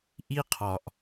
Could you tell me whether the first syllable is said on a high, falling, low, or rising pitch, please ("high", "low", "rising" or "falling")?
high